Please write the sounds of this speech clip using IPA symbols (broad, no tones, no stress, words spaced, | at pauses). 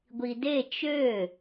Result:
ɡʷide t͡ʃø